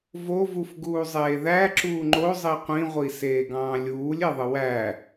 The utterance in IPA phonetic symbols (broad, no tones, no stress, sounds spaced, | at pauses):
v o v u f ɡ uː zˤ eː ð æ ǁ uː ŋ͡ǃ o zˤ i qʷ ĩ ʁʷ i s eː ɡ ɑ̃ː lʲ uː lʲ e ðˤ ɯ w æ